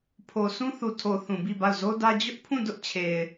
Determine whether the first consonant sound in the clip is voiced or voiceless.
voiceless